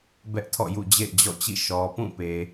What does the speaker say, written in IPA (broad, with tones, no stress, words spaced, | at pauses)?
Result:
bɛ˦ʔtʰɔ̰˦˨jṵ˦˨ d͡ʑḛ˦˨ɪ̯d͡ʑɔ̰˦˨t͡ɕḭ˦˨ ʃɔ˨pũ˦˨pe˨